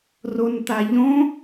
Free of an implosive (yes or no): yes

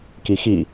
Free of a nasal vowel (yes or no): yes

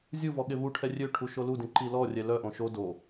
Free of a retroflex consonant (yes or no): no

